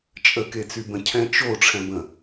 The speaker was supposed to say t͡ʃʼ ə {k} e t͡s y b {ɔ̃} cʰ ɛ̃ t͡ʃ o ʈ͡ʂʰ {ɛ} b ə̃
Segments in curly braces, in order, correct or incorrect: correct, incorrect: ə̃, incorrect: ɛ̃

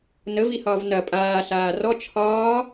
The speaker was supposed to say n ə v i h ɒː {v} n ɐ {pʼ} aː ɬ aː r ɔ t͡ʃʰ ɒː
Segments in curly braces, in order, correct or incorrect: correct, correct

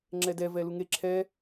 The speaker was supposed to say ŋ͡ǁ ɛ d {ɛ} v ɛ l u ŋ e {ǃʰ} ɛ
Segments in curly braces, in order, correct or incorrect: correct, incorrect: ǁʰ

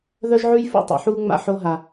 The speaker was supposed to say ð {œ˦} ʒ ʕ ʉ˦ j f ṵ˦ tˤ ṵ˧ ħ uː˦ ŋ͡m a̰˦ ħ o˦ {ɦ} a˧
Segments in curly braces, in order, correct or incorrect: correct, correct

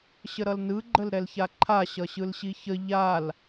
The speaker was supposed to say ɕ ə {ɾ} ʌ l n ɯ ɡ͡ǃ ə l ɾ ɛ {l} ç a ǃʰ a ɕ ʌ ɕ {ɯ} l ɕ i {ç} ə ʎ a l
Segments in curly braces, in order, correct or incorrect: correct, correct, correct, correct

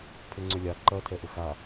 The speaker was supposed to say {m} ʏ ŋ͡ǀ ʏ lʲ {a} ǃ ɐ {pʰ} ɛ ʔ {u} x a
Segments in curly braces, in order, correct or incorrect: incorrect: pʰ, correct, incorrect: tʰ, incorrect: ʏ

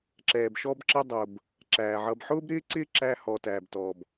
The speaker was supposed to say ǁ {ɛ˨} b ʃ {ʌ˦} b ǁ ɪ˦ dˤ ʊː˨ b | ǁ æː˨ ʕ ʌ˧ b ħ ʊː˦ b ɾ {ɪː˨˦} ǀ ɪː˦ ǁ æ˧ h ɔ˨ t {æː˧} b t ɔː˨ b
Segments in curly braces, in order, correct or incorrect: incorrect: ɛː˨, incorrect: ɔ˦, incorrect: ɪː˦, incorrect: æː˨

